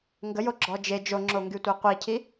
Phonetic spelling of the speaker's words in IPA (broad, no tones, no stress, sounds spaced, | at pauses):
ŋ ɡ ə j o ɡ͡ǁ ɔ d͡ʒ e d͡ʒ o ŋ͡ǁ o ŋ ɡ y tʷ e qʷ i cʰ i